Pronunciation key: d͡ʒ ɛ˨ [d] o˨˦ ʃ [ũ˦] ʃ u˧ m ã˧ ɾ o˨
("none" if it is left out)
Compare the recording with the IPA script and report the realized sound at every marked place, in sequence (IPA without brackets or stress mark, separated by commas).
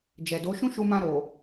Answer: d, ũ˦